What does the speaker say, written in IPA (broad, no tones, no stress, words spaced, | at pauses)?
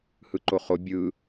hɯǃoχo bʲɯ